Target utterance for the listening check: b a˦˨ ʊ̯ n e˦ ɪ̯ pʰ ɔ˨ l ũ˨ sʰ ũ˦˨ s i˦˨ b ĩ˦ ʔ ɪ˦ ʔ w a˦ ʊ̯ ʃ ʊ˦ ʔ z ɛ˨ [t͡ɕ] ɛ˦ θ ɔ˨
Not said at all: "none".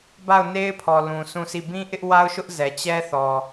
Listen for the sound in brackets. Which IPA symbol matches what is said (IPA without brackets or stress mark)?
t͡ɕ